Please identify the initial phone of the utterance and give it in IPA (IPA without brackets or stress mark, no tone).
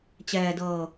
t͡ɕ